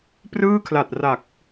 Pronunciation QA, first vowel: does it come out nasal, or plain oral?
oral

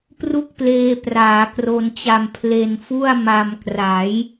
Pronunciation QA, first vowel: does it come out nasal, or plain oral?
oral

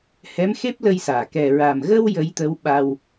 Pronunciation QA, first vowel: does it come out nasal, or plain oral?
oral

